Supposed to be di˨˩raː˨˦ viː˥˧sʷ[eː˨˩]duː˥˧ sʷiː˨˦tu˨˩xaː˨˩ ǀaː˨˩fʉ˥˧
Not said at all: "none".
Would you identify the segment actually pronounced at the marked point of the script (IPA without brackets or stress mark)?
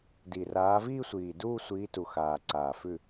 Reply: iː˨˩